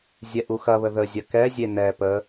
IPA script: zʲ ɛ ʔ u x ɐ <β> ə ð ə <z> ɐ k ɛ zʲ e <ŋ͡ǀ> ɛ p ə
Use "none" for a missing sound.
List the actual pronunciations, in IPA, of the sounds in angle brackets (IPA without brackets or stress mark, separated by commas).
β, zʲ, n